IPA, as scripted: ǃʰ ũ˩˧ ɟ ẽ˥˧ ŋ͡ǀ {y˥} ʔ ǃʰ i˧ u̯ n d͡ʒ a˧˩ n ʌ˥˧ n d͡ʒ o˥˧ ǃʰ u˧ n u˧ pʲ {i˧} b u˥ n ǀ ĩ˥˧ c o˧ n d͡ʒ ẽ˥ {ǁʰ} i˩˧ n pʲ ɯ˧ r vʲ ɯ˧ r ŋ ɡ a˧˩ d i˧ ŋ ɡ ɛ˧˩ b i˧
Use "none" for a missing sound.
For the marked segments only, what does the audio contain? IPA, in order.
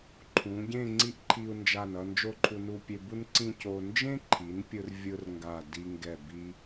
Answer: i˥, e˧, ǃʰ

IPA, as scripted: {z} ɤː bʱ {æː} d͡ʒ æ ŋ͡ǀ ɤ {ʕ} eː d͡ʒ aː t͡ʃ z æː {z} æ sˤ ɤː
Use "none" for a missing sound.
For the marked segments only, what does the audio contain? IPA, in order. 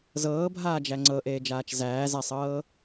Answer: z, aː, ʔ, z

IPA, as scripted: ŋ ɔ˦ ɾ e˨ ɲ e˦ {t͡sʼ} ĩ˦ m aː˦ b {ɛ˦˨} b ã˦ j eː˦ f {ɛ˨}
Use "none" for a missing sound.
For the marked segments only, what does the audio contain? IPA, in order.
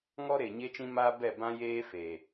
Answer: t͡ʃ, ɛ˦˨, e˨

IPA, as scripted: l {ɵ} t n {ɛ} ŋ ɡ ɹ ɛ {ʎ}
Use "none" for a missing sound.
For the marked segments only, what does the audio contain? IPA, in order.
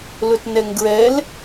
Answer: ɵ, ɛ, l

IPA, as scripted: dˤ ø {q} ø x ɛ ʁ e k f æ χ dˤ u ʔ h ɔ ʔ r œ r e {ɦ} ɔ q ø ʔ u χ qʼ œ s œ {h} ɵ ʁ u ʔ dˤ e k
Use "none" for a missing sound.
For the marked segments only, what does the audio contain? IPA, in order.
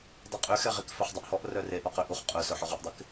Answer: qʼ, ʔ, ħ

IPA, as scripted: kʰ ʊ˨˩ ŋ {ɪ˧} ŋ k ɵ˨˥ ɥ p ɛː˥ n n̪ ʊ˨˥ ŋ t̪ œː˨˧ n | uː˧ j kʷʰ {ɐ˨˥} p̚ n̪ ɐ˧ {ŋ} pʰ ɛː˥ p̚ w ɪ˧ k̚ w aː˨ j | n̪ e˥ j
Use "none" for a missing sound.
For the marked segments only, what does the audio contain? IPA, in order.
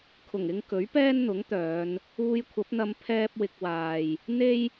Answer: ɪ˧, ɐ˨˥, m

